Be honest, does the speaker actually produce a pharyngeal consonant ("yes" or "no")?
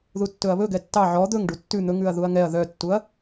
yes